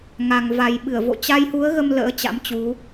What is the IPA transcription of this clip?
ŋ a˨˩ ŋ v a˨˩ j ɓ ɨ˧˩ ə̯ v o̰˧˨ t͡ɕ a˧ j h u˨˦ ə̯ ɣ ə˧ m l ə̰ː˧˥ t͡ɕ a̰˧˥ m t͡ɕ u˨˦

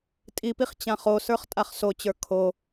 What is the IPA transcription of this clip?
tʼ i p i χ t͡ɕ ã χ o s ə˞ χ tʼ a χ s o t͡ɕ ə˞ kʰ o

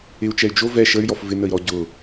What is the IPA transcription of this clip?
ɪ u̯ t͡ʃ ɛ y̯ d͡ʒ o v ɛ ʃ ə y̯ j ɔ f v ɪ n ə i̯ ɾ ɔ ɟ ʊ

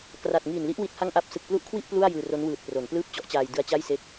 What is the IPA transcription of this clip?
k r a˨˩ t̚ ŋ iː˨˩ n l i˦˥ ʔ w i˦˥ t̚ h a˥˩ ŋ ʔ a˥˩ p̚ s ɯ˨˩ k̚ p l u˦˥ ʔ kʰ w i˥˩ ʔ p l u˥˩ a̯ j ɯː˧ r o˦˥ n w ɯː˨˩ t̚ p r o˩˦ n p l ɯː˥˩ p̚ t͡ɕ ɔ˦˥ ʔ t͡ɕ aː˧ j d ɯ˦˥ a̯ t͡ɕ a˥˩ j s e˦˥ k̚

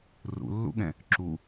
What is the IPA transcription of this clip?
r ṵ lː ṵ ɠ ɛ̃ | ǁ u

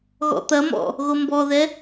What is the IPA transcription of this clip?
ɣ ɔ̰ t̪ ɐ m ɔ̰ | ɣ o m b ɔ ð ɛ

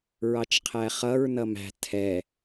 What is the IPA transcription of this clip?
ɹ ɑ t͡ʃ qʰ æ χ ʌ ɹ n ʌ m æ̤ tʰ ɛ

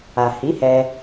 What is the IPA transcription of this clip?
a˨ h i˨˦ h ɛ˧

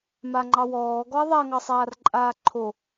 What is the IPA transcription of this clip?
m a ŋ͡ǃ ɑ w ɔː ɡ ɔ ɐ̯ ðˤ a ŋ ɑ sˤ aː r ǃʼ aː ǃʰ o

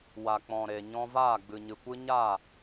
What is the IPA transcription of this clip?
w a˨ k͡p ɔ̃˨ ɾ e˨ ɲ ɔ̃˧ v aː˦˨ ɡ͡b ɨ˨ ɲ ɨ˨ kʷ ɨ˦ ɲ a˦˨

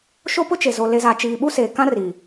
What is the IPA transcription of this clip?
ʃ o˦ p ʊ˦ t͡ʃ e˨ z o˨ l e˨ z a˨ t͡ʃ iː˨ ɓ u˦ s eː˨ k ã˦ r i˨

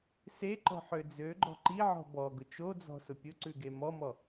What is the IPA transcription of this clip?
s e ǃ ɔ̤ ħ ø d͡z ø ɡ͡ǃ ɔ̤ ǃ i ʕ ɔ̤ b ɔ ɡ ʊ t͡ʃ o d͡z ɔ̤ s ʊ pʲ ʊ ǀ ʉ ɡ e m ɔ m ɔ

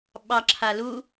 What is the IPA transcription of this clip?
ɓ ɑ ǁʰ a l u

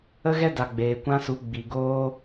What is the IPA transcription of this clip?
ə˦ ɣ ɛ˦ d a˨ ɡ͡b eː˨ kʷ ã˦ s u˨˦ ɡ͡b i˨ ɡ oː˦

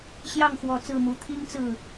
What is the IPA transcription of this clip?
ɕ j ɑ˥˩ ŋ x w ɔ˨˩ t͡s ɹ̩˥˩ m u˨˩ t̪ʰ i˥ ŋ t͡s ɹ̩˥˩

